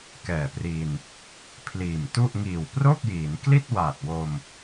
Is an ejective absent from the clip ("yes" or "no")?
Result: yes